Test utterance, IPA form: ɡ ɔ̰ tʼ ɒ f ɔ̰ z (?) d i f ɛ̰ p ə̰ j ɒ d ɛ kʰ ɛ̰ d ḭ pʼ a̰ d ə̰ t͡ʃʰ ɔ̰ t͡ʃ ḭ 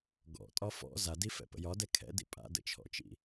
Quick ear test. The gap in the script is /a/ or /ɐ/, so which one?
a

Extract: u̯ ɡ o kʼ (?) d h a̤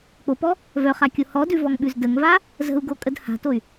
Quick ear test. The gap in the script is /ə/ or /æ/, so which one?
ə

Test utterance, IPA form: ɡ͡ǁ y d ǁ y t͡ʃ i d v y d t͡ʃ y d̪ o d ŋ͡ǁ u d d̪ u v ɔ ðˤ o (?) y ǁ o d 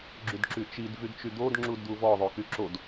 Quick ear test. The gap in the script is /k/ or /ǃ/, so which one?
k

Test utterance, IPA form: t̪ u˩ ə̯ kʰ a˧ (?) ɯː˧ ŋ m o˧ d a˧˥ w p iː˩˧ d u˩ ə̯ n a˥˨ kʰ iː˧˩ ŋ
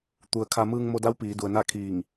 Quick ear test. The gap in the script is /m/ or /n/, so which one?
m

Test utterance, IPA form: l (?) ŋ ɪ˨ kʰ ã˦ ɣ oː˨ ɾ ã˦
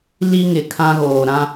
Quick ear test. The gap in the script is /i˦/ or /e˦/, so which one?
i˦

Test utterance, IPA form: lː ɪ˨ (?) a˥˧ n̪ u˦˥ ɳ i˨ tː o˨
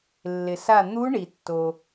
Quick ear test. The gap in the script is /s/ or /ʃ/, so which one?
s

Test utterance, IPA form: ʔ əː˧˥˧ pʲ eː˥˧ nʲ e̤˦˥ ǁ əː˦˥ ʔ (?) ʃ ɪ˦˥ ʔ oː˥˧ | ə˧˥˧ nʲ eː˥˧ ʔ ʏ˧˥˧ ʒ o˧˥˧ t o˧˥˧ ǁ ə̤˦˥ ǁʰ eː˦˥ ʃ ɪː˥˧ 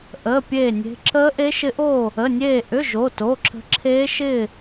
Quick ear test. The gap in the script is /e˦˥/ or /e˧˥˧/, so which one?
e˦˥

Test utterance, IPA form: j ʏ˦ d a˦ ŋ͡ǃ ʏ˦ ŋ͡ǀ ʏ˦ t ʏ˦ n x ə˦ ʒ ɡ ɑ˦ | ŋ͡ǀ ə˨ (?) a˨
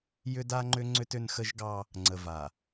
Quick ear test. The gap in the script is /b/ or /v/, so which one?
v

